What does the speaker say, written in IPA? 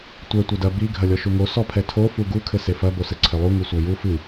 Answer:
tʷ ɛ tʷ ɐ d ɐ b i ɡʱ ɐ lʲ ɔ ʃ u ŋ o s ɔ pʰ ɛ tʰ o f u ɡ u kʰ ɘ s e f ɐ b o s ɘ ǀʰ ɘ lˠ u ŋ u sʷ a j u f ɨ

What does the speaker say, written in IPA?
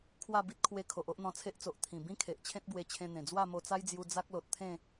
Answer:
kʰ w a˥˧ b i˦ t̚ kʰ w e˧ kʰ o˨ ʔ o˦ ʔ n̪ ɔ̃˧ t͡sʰ e˦ ʔ t͡s o˨ ʔ t̪ʰ ĩ˨˩ b ĩ˦ kʰ e˨ ʔ t͡ɕʰ ẽ˦ t̚ b w e˧ t͡ɕʰ ẽ˧ n̪ ẽ˨˩ d͡z w a˥˧ m o˧ t͡s a˦ j d͡z j u˧ d͡z a˦ k̚ l o˨ t̚ t̪ʰ ẽ˥˧

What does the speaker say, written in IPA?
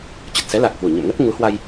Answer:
t͡ɕ ə˨˩ t̚ s ɛ˨˦ l a˨˩ k̚ h w u˧˩ ɲ ə̰˧˨ m ŋ ə˦˥ t̚ ŋ u˨˦ h w a˧ j

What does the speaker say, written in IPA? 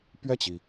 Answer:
p ɥ ɛ˥˩ t͡ɕ i˩

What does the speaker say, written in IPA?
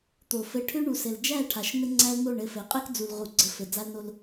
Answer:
t̪ o˨ f ɘ˨ ʈʰ ʏ˦ ɳ u˨ s ɘ˨ l d͡ʒ æ˦˨ ʈʰ a˨ ʃ n̪ ɘ˦ ŋ͡ǀ æ˦ l n̪ o˦˨ ɳ ɘ˦˨ f ɘ˨˦ qʼ ɘ˦ k d͡z u˨ l ʁ u˨ ɡ͡ǀ ə˨ f ɘ˨ d͡z a˦ l n o˦ l

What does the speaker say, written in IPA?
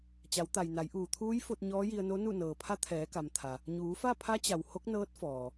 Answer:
t͡ɕ a˩˧ w t̪ a˩ j n a˩˧ j ʔ uː˩ t̪ʰ uː˧˥ j f o˧ t̚ ɲ ɔː˧˥ j i˧ ə̯ n o˧˥ n u˥˨ n ɤː˩ pʰ a˧˥ t̪ʰ ɛː˩˧ k a˩ m t̪ʰ a˩ | ɲ uː˩˧ f a˥˨ pʰ a˧˥ t͡ɕ a˩ w h o˧˥ k̚ n ɤː˧˥ t̚ f ɔː˩

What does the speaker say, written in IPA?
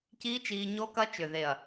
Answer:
c iː˦˥ t͡ʃ iː˧ ɲ o˦˥ k ɐ˦˥ t͡ʃ ʏ˧˩ ð e˧˩ ɐ̯

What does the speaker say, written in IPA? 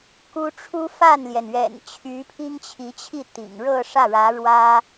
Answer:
k u˥ ʈ͡ʂʰ u˥ f a˥˩ n l j ɛ˩ n ɥ ɛ̰˨˩ n t͡ɕʰ y˧˥ pʰ i˥ ŋ t͡ɕʰ i˧˥ t͡ɕʰ i˥˩ t̪ ḭ˨˩ ŋ ɻ ɤ˥˧ ʂ ä˥˩ ɻ ä˧˥ ɻ w ä˥

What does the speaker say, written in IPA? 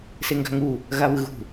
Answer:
s e ŋ ɡ a̤ ŋ u | ɣ a β ɯ ɣ ṳ

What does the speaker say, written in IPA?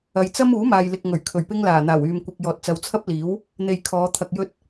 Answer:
ɐ˨˧ j t͡s ɐ˥ m uː˨˥ m aː˨ j l ɪ˨ k̚ ŋ ɵ˨˩ ɥ kʰ ɵ˨˩ ɥ p ɪ˥ ŋ l aː˨˩ n̪ aː˨˩ w yː˨ m kʷ ɪ˨ k̚ j ɔː˨ t̚ t͡s ɐ˨˧ w t͡sʰ ɐ˥ p̚ l iː˨˥ w | n̪ e˧ j kʰ ɔː˨˧ t̪ʰ ɐ˧ k̚ j ɵ˥ t̚

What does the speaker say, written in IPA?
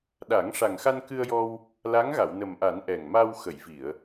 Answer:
ɗ a˨˩˦ ŋ ʂ a˨˩ ŋ x a˧ n k ɨ˧ ə̯ j ɔ˧ w | l a˧˥ ŋ ɣ a˨˩˨ w n ə˨˩ m ʔ a˨˩˦ n ʔ ɛ˨˩ ŋ m a˧ w x ə˨˩˨ j v i˨˩˨ ə̯

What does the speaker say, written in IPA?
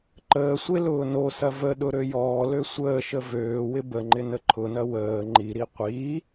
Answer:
ǃ əː sʷ e l ʊː n o s ɐ v ə ɗ ʊ ɾ ø j ɔː l ø sʷ əː ʃ ə v øː w ɪ b ə ŋ͡ǃ ɪ n ə ǃʰ ʊ n ɐ w əː ŋ͡ǃ i ɾ i qʷ i

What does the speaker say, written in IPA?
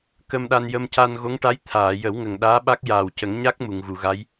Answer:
k ə˧ m ɗ a˧ n j ə˧ m c a˧ n ɣ o˧˥ ŋ ʈ a˧˥ j t̪ʰ aː˨˩˨ j ə˨˩˦ w ŋ ə˨˩ ŋ ɗ aː˧˥ ɓ a˦˥ k̚ j aː˨˩ w c ə˨˩˦ ŋ ɲ a˦˥ k̚ m u˨˩˨ ŋ ɣ u˨˩˨ ɣ a˧˥ j

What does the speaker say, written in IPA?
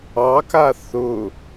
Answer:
ɑ k a θ ʊ

